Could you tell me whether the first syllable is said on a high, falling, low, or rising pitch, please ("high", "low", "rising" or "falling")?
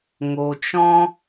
low